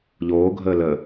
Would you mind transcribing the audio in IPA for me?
ʎ oː ɡʱ əː l ə

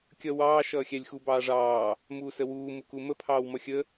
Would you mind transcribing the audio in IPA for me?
kʲ ʌ w ɑː ʃ ʌː xʲ æ lʲ x u b ɑː ʐ ɑː | m uː s ə w uː m u k u m ə pʰ ɑː w m ʌ xʲ ə

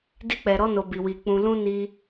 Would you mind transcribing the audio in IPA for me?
d i˦ k͡p ɛ˧ ɾ ɔ˦ n o˧ b i˧ w i˧ k͡p ũ˧ l ũ˦ n i˧

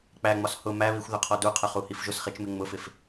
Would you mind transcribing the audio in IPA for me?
k͡p æ ŋ͡m ɒ s h ʊ m æ β i xʷ ð ʊ qʰ ɔ d u qʰ ɜ χ u h i f ʒ ʊ s χ i t͡ʃ m ɪ ŋ͡m ʊ f ɪ f

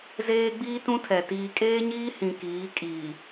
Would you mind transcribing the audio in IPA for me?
z eː˦ ɡ͡b iː˦ t ũ˦ tʰ ɛ˨ t iː˨ kʼ eː˦ ɲ iː˦ h ĩ˨ k iː˨˦ kʼ iː˨

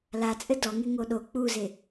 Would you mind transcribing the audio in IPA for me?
l a t͡sʼ ɘ d ɔ ŋ e ŋ o ɗ o k͡p u z e

